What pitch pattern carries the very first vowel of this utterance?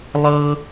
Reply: high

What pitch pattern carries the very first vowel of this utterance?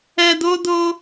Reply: low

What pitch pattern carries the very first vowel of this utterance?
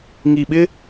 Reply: low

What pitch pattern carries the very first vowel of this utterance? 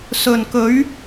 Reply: low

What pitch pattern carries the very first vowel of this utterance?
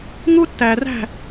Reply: high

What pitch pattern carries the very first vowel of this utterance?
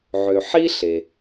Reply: low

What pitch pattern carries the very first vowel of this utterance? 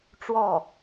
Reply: falling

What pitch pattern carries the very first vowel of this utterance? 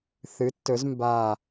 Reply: rising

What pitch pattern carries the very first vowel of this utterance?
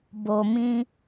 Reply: low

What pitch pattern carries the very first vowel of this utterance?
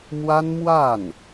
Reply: high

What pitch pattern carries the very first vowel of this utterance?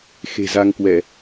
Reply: low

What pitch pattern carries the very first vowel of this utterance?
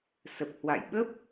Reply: low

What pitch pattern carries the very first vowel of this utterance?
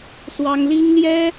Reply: high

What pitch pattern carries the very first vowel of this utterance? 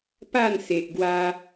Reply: falling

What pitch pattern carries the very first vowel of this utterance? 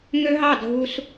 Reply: high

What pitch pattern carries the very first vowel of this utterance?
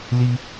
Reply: high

